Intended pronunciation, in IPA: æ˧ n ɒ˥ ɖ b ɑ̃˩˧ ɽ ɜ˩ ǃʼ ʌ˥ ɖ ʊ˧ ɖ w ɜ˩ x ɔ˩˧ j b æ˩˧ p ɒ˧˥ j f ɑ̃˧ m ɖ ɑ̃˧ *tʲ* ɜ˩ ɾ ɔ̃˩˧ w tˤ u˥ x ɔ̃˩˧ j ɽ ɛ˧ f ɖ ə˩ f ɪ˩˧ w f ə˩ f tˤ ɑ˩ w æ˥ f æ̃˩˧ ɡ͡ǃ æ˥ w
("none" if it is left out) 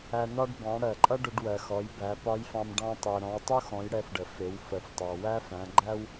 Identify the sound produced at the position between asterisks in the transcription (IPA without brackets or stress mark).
tˤ